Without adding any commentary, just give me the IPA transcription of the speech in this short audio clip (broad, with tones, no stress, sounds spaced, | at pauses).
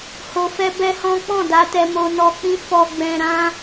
h o˨ f ɛ˧ b ɛ˦ h ɔ̃˦ k͡p ɔ̃˦˨ d a˧ t ɛ˧ m o˧ n ɔ˧ k͡p ĩ˦ f ɔ˧ ɡ͡b ɛ̃˧ ɾ ã˦